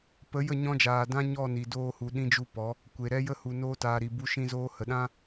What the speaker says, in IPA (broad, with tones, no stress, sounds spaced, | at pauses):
p ə˨˦ j ə˦˨ ɲ ɔ̃˧ d͡ʒ aː˨ d ã˦ ɲ ɔ˦˨ n i˨ d oː˧ h u˨ ɗ ĩ˦ d͡ʒ u˦ p ɔ˨˦ | kʷ e˨ ɾ ɛ˦ j ə˦ h u˨ n oː˧ t aː˨ ɾ i˨ b u˧ ʃ ĩ˧ z oː˧ h ə˨ ɗ ã˦